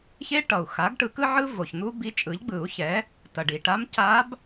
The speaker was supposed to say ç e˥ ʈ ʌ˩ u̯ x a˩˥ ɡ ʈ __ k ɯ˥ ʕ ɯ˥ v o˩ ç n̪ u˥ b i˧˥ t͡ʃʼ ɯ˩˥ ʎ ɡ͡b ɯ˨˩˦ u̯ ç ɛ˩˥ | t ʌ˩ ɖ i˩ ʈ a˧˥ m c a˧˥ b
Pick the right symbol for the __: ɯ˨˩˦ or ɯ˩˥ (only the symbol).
ɯ˨˩˦